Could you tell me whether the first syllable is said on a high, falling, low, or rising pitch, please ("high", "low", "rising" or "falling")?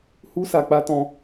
high